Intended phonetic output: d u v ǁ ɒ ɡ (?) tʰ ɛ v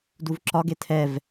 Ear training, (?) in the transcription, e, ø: e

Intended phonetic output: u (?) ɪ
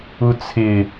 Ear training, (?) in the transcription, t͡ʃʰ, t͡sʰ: t͡sʰ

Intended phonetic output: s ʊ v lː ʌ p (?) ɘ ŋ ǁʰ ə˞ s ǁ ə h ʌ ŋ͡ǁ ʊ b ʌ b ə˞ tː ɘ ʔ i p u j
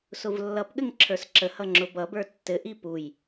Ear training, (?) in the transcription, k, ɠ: ɠ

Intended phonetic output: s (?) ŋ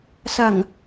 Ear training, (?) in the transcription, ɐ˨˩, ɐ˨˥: ɐ˨˩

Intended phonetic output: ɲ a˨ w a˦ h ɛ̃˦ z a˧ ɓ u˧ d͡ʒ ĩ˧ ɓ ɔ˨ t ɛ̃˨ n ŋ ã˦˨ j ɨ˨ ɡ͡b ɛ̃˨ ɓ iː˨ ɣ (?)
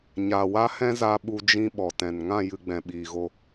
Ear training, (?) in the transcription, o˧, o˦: o˧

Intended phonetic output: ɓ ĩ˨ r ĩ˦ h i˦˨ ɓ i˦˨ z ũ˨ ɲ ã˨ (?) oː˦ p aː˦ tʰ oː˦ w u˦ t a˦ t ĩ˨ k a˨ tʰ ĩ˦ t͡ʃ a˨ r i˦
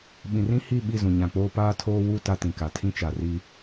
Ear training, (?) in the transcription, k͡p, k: k͡p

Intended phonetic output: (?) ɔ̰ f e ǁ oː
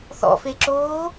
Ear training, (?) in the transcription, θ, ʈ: θ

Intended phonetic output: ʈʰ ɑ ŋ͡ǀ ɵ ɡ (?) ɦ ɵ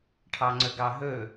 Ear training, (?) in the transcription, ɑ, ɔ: ɑ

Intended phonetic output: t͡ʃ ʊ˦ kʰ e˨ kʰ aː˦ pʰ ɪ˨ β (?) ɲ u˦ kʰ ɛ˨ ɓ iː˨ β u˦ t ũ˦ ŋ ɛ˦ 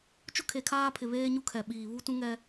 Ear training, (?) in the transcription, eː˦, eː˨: eː˦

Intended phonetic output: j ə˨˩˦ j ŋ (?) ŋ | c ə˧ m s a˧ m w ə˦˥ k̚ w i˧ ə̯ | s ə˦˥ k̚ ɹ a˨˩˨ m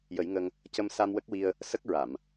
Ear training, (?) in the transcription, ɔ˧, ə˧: ə˧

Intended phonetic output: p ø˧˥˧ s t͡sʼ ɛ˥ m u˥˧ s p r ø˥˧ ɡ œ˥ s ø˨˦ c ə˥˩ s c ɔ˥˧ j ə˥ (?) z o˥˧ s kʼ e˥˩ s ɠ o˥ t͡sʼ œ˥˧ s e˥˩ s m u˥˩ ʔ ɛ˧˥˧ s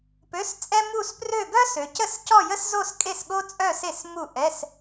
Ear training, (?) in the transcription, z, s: s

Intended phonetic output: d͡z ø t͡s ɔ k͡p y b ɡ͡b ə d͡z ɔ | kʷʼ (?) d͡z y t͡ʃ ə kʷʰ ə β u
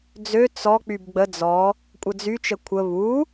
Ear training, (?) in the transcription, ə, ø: ə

